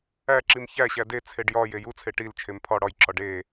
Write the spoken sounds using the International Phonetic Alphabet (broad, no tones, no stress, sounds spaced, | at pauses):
æ ǁ i m ç æ ɕ æ d e t͡sʰ e ɖ j ɒ j e j u t͡sʰ e ʈ i l t͡ʃʰ e m pʰ ɒ ɽ ɒ j ǁ ɒ ɖ e